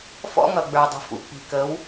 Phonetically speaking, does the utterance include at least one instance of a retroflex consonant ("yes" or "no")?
no